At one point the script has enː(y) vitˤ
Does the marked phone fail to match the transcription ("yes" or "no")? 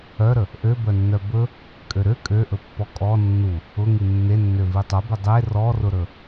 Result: yes